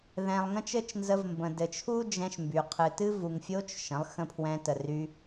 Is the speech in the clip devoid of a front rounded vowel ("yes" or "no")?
no